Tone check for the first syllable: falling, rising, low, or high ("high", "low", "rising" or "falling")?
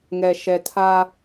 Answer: low